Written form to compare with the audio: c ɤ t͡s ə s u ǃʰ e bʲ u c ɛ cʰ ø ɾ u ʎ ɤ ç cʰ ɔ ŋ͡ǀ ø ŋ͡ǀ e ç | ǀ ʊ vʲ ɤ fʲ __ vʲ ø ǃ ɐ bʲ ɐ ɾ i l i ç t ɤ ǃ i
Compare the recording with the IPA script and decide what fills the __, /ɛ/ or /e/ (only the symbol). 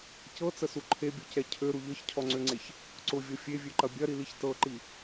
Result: e